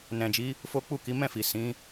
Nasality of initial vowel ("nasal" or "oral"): nasal